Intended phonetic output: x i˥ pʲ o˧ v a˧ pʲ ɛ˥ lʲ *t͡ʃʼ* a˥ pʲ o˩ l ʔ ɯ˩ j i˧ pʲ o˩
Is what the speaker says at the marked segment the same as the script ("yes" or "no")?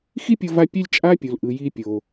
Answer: yes